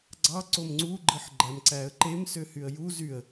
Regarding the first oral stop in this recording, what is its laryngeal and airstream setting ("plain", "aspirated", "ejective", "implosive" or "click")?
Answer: click